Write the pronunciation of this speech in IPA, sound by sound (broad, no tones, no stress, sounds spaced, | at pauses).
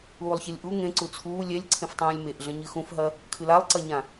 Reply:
uː lˠ ç e lʲ ʔ u ŋ ẽ ǀ u t͡sʰ uː lʲ ɛ lʲ ǀʰ ẽ f tˤ ũː lʲ m e ʔ ɮ ɐ̃ ɲ ɨ x ũ f ɦ ɐ | kʰ ɨ l a lˠ ǀ ɐ ɲ ã